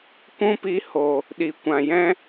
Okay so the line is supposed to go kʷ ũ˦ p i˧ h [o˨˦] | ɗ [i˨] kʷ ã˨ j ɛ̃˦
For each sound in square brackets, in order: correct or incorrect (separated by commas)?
incorrect, correct